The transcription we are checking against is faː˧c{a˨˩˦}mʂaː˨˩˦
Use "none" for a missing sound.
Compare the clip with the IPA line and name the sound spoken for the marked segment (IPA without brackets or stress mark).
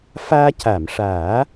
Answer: a˨˩˨